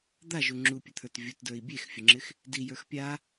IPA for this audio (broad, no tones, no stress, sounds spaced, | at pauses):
d̪ a ʒ u ŋ͡ǁ u pʲ ə t̪ʰ ə˞ t vʲ u t d ə˞ i̯ bʲ e x fʲ ə ŋ͡ǁ ɪ x | d i j ə˞ x pʲ a